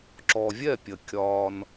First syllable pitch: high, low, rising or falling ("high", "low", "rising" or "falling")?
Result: low